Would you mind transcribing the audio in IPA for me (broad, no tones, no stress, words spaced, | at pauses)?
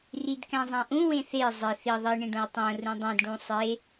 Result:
ridkæ̃zˤæ̃ʔũ wẽθe zˤe θi ðˤi ɳĩɖõwtˤõ rũdˤĩd ɖũsˤe